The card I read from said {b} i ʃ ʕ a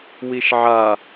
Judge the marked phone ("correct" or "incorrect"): incorrect